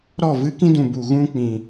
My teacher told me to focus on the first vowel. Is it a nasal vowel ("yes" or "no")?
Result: no